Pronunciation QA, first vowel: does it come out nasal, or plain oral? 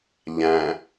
nasal